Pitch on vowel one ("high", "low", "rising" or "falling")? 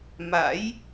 rising